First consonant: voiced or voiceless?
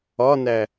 voiced